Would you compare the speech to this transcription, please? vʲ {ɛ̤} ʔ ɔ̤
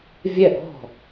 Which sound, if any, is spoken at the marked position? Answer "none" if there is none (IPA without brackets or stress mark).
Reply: ɛ